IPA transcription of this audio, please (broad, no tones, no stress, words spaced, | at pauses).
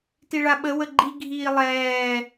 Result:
tiɭaɓə wəɡ͡ǃi ɡʱiːlˠɛː